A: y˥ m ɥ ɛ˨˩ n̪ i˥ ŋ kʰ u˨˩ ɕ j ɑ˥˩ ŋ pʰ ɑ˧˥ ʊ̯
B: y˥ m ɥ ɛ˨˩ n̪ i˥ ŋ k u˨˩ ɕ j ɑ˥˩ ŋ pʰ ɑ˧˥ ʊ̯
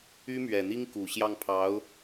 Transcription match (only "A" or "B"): B